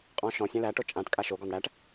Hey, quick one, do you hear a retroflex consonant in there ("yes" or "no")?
yes